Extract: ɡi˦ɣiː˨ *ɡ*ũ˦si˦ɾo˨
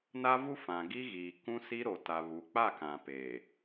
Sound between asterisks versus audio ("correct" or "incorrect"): incorrect